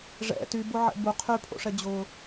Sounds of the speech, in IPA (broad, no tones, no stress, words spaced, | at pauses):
ʐɛ̰ tybʊʕɛ̰ bu qʰypʰo̰ʂɛ d͡ʑʊ